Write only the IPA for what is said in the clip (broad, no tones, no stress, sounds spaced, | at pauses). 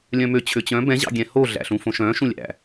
lʲ œ̃ m ø t͡ɕʰ ø t͡ɕ œ̃ b ɛ̃ ʑ ɑ̰ ɡʲ ɛ̃ h o ɮ æ̰ ɬ ũ f õ ʃ œ̃ ʃ ũ lʲ æ̰